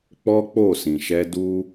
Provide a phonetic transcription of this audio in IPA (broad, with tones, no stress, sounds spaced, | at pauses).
k͡p ɔ˦ k͡p o˦˨ s ĩ˨ ʃ ɛ˧ d u˦